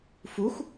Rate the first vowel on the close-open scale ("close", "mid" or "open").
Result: close